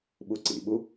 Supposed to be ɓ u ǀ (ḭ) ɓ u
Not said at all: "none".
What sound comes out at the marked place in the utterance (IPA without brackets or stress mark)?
ḭ